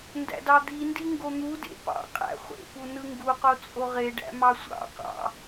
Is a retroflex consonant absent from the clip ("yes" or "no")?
no